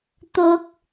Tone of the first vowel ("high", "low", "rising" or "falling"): low